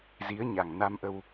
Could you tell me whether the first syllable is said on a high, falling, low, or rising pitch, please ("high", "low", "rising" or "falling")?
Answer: rising